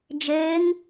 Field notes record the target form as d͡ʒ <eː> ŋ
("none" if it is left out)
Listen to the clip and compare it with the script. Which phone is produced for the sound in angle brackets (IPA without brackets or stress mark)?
eː